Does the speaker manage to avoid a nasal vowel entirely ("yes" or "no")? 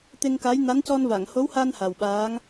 yes